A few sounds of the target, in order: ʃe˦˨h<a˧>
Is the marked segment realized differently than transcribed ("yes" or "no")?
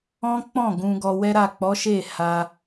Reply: no